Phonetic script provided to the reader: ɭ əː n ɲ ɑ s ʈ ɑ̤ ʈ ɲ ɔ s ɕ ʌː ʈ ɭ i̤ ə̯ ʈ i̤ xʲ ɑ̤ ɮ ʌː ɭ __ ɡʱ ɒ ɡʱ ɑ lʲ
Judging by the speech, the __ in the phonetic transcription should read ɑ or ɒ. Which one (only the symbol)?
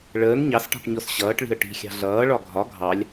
ɒ